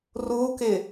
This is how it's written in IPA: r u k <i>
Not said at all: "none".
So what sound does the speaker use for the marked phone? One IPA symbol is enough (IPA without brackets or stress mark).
ɪ